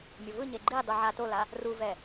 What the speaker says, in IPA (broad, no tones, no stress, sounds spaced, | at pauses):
mʲ o v ɯ ɲ e ɡ͡ǃ i dˤ u ʕ a t o l a | r u v ɛ